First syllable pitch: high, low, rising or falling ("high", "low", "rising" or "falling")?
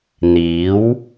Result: rising